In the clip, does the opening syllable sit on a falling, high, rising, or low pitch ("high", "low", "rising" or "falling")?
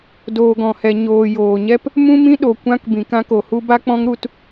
low